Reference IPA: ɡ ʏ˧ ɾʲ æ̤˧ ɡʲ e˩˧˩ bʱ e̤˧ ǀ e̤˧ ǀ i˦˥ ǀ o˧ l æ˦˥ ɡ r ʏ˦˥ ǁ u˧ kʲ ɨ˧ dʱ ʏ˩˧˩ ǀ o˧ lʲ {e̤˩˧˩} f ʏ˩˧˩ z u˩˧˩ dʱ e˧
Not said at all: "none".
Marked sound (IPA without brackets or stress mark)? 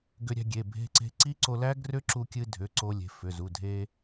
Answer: e̤˩˧˩